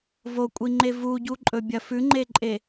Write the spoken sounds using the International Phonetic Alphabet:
vokʷʼiŋ͡ǃe vuɟuǃʼɵ bʲɐfʉŋ͡ǃeǃʼe

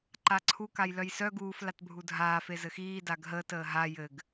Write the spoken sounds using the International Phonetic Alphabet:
ǃaǀʰu kajlœjsœ ɡuːf latbʱudʱaː fezɘxiː daɡɦəːt əːɦa jɘɡ

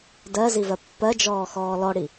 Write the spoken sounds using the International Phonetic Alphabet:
dɜzivɜ pːɜd͡ʒɔːxɔː lɔɽi

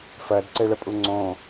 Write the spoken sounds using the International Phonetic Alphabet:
fɜdǀeɭəpʼu ŋ͡ǀõ

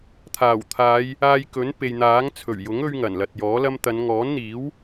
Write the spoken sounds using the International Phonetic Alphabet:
t̪ʰaː˨˩wt̪ʰaː˨˧j | aː˧jkɵ˨˥npe˨jn̪aː˨˥ŋ t͡sʰɵ˨˩ɥjʊ˨˥ŋ ɵ˥ɥŋɐ˨˩n lɐ˨t̚jɔː˨˥lɐ˥m t̪ɐ˨˧nŋɔː˨˥nn̪iː˨˥w

